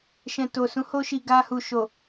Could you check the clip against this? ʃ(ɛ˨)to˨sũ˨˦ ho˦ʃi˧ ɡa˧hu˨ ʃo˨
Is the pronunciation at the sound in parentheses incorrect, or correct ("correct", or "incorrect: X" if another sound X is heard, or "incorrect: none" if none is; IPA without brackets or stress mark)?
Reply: incorrect: ɛ̃˨